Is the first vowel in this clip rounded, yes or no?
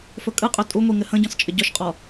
yes